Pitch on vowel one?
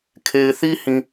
low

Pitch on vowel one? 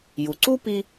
low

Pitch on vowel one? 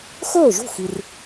falling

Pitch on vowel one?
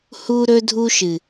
high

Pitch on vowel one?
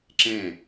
falling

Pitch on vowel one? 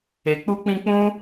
low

